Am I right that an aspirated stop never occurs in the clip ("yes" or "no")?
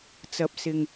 yes